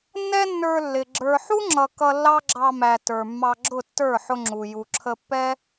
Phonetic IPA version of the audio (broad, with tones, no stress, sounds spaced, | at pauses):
nː ɛ˦ nː ə˞˧ lː ɪ˨ ɡ͡ǁ ə˞˨ ħ u˦ ŋ͡ǁ ʌ˨ k ʌ˧ lː ɑ˦ ɡ͡ǁ ɑ˧ m æ˨ t ə˞˨ mː ɑ˧ ɡ͡ǁ ʊ˦˨ tː ə˞˦˨ ħ ʊ˧ ŋ͡ǁ u˨ j u˨ ǁʰ ə˧ pː ɛ˦